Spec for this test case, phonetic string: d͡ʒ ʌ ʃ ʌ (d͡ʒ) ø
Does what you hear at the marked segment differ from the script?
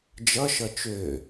yes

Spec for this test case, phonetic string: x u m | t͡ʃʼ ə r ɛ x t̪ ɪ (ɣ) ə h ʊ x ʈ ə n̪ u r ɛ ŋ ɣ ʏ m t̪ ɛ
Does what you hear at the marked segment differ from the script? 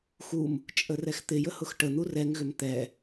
yes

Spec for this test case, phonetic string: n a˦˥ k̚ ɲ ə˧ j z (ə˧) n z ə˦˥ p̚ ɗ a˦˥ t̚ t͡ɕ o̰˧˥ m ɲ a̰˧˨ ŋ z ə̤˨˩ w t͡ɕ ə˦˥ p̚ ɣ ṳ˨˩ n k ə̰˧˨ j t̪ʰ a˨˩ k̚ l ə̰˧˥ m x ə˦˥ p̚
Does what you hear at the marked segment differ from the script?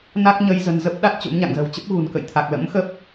yes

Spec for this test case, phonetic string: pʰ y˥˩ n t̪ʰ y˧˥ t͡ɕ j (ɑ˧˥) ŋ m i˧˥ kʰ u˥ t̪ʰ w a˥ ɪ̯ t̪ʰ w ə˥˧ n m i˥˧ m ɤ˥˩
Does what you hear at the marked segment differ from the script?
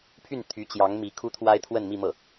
no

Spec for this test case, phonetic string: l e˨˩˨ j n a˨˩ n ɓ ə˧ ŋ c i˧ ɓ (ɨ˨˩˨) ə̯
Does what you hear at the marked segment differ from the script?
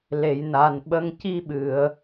no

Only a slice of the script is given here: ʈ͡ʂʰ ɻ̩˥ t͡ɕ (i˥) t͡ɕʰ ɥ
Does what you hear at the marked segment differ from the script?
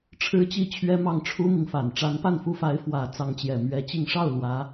no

